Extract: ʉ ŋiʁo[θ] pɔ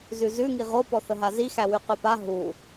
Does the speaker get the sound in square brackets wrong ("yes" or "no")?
yes